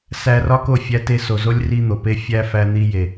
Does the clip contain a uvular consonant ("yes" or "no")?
no